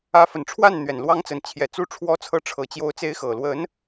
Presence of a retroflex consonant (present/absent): present